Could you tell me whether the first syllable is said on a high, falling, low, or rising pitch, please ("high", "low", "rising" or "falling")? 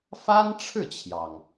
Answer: high